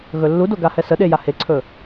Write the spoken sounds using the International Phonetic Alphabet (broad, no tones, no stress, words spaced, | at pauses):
ɣɵlːudo ɡahɛsəɗe jaheǀʰɵ